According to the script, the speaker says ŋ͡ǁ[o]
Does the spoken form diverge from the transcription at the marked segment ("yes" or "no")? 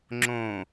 yes